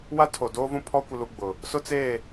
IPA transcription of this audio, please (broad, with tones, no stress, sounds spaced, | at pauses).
w a˦ tʰ o˨ d oː˦ v ũ˦ pʰ ɔ˦ kʷ ɪ˦ l u˦ ɡ͡b ʊ˨ | s ʊ˦ t͡s eː˦˨